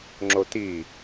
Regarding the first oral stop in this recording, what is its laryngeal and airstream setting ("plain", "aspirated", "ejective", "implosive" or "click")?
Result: click